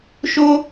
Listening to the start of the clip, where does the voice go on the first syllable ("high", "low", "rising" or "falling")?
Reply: high